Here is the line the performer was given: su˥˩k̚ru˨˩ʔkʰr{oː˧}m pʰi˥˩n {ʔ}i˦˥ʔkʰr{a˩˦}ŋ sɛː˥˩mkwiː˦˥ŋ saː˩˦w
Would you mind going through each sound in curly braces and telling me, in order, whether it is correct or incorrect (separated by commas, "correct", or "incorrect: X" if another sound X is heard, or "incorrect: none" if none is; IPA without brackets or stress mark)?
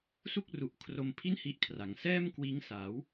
incorrect: o˧, incorrect: h, correct